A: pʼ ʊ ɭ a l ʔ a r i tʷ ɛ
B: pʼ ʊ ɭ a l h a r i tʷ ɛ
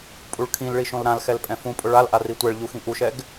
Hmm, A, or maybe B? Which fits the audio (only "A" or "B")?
A